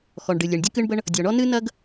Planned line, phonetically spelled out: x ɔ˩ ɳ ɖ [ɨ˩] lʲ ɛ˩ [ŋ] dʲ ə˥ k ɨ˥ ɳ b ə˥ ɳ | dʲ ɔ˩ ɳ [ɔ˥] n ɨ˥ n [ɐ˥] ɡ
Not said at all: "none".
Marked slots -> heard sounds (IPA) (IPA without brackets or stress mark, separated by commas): ɨ˩, ɳ, ɔ˥, ɐ˥